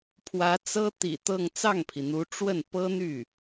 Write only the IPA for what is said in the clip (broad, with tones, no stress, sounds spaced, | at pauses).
pʰ w ä˧˥ t͡s ɤ˥ t̪ ḭ˨˩ t̪ ɤ˥˧ ŋ t͡s ɑ˥˩ ŋ pʰ i˩ n̪ u˧˥ ʈ͡ʂ w ə˥˩ n p ɤ˥ n̪ y˥˩